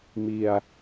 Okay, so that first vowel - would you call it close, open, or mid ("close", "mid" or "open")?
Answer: close